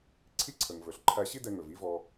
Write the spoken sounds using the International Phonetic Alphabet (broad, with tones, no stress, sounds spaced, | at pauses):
ǀʰ i˥ ǀʰ ə˩ ŋ v ɵ˩ ɬ ǃʰ æ˧ ɕ i˥ d ɛ˧ ŋ ɵ˩ v i˥ v ɔ˧